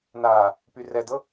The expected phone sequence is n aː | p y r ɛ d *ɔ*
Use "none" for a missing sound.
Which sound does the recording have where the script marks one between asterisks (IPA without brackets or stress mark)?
ɤ